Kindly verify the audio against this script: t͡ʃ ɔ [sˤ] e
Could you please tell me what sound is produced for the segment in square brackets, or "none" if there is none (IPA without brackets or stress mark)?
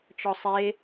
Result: sˤ